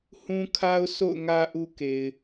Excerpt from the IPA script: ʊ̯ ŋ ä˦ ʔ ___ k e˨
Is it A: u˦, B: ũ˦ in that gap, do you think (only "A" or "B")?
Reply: A